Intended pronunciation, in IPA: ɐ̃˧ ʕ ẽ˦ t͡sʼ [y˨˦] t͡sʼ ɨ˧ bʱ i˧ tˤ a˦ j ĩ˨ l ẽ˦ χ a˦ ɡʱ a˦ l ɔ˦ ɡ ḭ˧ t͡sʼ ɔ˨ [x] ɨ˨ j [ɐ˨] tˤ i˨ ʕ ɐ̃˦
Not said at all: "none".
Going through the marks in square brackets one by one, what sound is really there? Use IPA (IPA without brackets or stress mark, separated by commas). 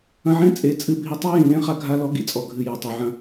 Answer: e˨˦, ɡʱ, ɐ˨